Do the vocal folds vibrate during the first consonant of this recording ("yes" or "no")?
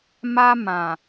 yes